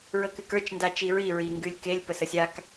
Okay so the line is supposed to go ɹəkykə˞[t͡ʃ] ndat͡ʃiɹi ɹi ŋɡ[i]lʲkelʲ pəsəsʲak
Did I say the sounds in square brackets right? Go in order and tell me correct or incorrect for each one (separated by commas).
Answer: correct, incorrect